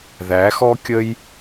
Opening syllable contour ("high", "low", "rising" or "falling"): rising